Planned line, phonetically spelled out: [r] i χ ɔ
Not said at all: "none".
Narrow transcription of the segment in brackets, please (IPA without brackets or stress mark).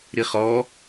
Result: ɾ